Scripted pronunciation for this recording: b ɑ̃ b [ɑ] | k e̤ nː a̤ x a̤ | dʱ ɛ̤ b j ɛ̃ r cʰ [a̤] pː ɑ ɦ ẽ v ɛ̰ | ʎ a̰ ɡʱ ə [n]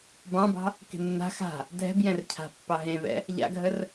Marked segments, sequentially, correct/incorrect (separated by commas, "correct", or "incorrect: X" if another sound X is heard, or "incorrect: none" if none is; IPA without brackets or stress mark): incorrect: ɑ̤, correct, incorrect: r